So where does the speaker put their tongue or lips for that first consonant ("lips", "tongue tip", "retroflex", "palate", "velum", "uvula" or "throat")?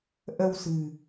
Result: throat